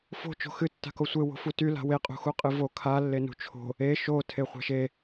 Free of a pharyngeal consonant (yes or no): yes